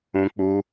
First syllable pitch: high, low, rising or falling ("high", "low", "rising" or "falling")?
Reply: high